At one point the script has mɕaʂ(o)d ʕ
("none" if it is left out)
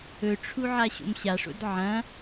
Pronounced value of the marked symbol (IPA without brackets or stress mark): o̰